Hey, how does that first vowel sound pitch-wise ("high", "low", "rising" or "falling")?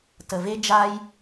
low